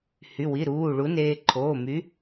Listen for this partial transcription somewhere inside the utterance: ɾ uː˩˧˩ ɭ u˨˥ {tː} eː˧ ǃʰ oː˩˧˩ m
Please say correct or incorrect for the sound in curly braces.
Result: incorrect